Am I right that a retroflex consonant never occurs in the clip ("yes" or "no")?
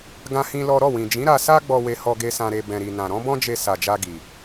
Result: yes